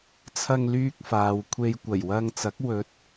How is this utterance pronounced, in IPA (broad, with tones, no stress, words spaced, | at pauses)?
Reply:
t͡sʰɐ˧ŋlyː˧k̚ faː˨wkʷʰe˧j kʷɐ˨˩jwɐ˧ŋt͡sɐ˨˥k̚ wɵ˨˥t̚